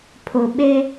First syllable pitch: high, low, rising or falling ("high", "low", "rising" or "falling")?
low